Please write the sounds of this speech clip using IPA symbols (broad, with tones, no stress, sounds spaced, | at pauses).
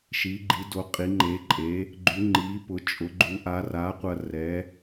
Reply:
ʃ i˩˥ ɡ͡ǃ i˩˥ d o˩˥ qʼ i˩˥ ŋ͡ǃ e˩˥ ǃʼ e˩˥ | ɡ͡ǃ y˩˥ ŋ͡ǃ i˩˥ p ʊ˩˥ t͡ʃʼ ʊ˩˥ ɡ͡ǃ u˩˥ ʔ a˩˥ r a˩˥ qʷ ɐ˧ r ɛ˩˥